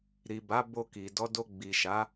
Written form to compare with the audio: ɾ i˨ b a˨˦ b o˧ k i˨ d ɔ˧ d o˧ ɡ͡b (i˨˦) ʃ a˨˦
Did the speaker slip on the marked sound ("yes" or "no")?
yes